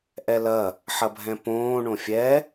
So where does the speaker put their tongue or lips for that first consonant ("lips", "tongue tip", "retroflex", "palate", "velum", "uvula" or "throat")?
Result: throat